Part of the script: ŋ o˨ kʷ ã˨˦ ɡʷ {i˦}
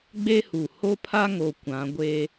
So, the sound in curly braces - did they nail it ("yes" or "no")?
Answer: no